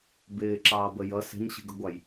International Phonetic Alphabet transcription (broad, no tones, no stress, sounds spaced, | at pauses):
b ɪː ǁ ɑː b ə j ʌ s ɛ̤ ɲ ɕ i̤ ɡ ə ɡʷ ɑ j